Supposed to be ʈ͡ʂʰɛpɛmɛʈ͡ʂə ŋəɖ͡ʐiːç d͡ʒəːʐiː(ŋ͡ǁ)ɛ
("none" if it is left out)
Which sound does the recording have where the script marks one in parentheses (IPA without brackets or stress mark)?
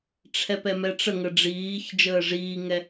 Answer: ŋ